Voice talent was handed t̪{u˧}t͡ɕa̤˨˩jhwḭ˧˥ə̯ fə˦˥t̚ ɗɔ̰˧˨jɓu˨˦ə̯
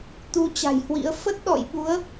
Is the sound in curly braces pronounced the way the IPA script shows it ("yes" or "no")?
yes